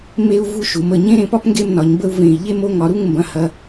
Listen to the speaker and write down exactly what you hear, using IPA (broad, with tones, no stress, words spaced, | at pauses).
me˥u̯ vu˥ʃu˩˧m ə˧˩ ɲẽ˥ɾẽ˧pɒ˥p ŋɡe˥˧mnɒ˩˧ɲbə˥˧u̯ vẽ˧˩i̯ ʎe˥˧mo˥˧ŋɒ˩˧ɾu˥˧ŋ mbɐ̃˧hɐ˧